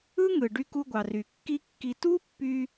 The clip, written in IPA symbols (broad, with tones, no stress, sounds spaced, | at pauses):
ɯ˥ ŋ ɯ˩ ɖ y˧ k u˧ ɡʷ ɑ˩ r y˩ kː i˥ kː i˧ t u˥ pː y˧